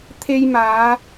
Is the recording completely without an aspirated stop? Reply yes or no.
no